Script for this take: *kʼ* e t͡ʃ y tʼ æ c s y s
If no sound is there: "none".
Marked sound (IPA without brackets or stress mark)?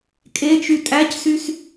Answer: kʼ